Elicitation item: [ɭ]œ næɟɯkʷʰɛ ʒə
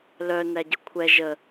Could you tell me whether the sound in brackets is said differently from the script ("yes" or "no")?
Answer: yes